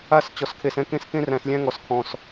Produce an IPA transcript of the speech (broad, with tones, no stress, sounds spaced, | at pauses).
a˦˨ s t͡ɕ ɔ˨ s kʰ e˨ s ɛ̃˦ k ẽ˦ s k ẽ˦ r æ̃˨ s lʲ æ̃˦ ŋ ɔ˨ s kʰ ɔ̃˨ s